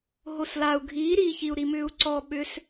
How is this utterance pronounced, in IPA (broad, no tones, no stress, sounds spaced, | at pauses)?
ɦ o s l a u̯ ɡʱ iː ɾ iː ç i u̯ ɾ i m ʏː u̯ ǀ ɔ ɓ ʏ s